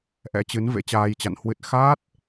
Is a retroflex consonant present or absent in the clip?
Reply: absent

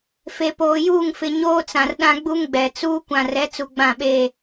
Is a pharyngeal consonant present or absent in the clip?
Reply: absent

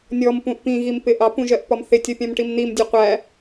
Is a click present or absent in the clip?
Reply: absent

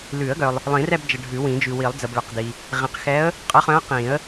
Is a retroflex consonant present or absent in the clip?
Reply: present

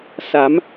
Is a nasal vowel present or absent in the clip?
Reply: absent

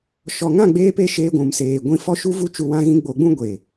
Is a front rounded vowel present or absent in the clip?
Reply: absent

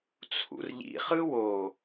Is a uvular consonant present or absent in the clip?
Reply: present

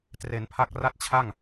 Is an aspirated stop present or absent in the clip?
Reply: present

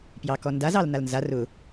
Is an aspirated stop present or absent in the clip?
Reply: absent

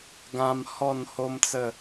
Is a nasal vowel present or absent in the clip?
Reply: present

